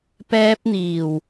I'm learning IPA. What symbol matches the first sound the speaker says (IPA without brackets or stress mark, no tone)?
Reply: p